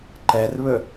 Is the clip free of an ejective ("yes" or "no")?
yes